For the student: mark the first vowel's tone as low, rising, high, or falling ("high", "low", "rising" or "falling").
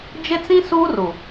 high